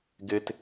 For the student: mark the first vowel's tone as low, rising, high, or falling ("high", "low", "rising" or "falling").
high